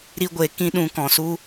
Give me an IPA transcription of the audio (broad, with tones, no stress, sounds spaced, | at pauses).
ɾ i˦ ɡʷ e˧ k ĩ˦ ɗ ũ˧ k ɔ̃˨ s u˦